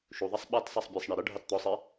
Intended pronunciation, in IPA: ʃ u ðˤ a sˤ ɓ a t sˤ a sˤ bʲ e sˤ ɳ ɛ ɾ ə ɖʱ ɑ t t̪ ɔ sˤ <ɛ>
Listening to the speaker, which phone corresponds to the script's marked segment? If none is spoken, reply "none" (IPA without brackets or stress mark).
e